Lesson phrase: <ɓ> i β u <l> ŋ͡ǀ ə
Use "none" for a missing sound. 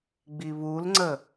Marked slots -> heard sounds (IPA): ɡ͡b, l

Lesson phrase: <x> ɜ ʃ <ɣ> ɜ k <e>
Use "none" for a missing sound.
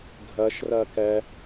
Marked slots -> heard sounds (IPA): ɡʱ, r, ɛ

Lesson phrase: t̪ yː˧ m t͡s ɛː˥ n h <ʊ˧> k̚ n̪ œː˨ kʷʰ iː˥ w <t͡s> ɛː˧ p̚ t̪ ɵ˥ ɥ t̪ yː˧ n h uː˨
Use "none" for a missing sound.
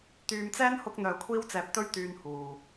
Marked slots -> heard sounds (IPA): ʊ˧, t͡s

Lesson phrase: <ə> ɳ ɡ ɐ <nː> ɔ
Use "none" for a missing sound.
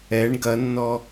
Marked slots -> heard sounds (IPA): ɛ, nː

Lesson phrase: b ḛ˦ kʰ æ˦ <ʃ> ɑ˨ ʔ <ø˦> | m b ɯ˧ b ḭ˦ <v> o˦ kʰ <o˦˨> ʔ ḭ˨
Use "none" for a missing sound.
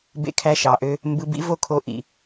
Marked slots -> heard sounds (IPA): ʃ, ø˦, v, o˧

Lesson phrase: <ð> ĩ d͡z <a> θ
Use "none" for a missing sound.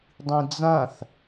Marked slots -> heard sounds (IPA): dˤ, ã

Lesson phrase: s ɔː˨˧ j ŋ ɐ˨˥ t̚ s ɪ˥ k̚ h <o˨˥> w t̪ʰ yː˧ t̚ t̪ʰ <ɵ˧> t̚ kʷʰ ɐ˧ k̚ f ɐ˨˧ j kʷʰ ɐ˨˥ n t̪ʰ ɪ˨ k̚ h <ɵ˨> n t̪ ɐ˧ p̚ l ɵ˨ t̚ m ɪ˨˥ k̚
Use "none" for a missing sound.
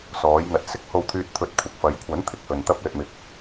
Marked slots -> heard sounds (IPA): o˧, ɵ˧, ɵ˨

